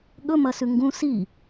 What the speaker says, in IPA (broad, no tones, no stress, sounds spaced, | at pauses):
ɠ ɵ m ɐ s ʉ ŋ ɡ ũ s i